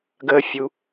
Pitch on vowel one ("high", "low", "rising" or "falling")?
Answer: low